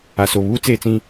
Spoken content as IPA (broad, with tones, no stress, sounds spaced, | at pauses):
a˨ s o˨ β uː˦ t͡s eː˨ t͡s ĩ˦